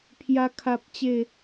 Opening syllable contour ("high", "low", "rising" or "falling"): high